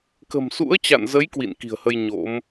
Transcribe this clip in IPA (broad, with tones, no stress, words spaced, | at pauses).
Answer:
kə̤˨˩msṵ˧˥ə̯t͡ɕa̰˧˨nzə˨˦j kwḭ˧˨nki̤˨˩ə̯hə˧j ɲo̰˧˥m